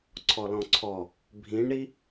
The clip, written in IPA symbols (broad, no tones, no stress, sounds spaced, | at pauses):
ǀʰ ɔ l ɔ̃ ǀʰ ɔ | bʱ ĩ ɳ ɾ i